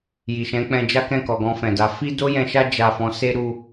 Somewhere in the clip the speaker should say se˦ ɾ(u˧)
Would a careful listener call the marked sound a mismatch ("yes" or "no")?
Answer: no